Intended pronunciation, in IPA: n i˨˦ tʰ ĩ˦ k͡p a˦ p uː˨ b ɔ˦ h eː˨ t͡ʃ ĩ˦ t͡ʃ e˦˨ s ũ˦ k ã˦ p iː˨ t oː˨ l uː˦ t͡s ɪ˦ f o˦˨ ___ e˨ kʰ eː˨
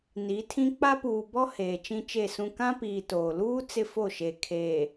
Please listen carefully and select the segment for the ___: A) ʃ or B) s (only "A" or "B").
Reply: A